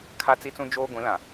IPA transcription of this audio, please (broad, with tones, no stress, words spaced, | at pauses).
kʰa˦t͡si˦t͡sũ˦ d͡ʒoː˦ɡʷĩ˨˦lã˨